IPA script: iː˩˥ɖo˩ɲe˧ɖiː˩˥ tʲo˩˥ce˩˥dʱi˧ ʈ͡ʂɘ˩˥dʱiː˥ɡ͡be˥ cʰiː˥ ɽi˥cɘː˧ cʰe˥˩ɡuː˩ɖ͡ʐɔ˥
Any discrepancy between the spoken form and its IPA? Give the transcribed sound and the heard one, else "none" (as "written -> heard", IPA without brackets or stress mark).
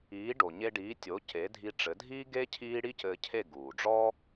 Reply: ɡ͡b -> ɡ